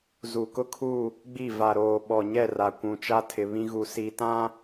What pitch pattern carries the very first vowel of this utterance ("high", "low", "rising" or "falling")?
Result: low